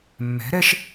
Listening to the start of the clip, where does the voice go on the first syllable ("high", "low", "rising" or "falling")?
rising